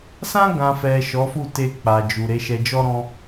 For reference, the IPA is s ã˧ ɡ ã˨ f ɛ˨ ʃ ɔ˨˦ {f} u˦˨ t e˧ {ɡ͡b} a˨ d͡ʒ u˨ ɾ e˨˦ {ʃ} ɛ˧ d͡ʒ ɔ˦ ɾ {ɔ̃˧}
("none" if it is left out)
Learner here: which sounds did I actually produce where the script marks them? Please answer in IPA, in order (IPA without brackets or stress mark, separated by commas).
f, k͡p, ʃ, ɔ̃˧